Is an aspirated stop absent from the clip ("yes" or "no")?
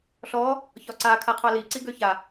no